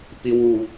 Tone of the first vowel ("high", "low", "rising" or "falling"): low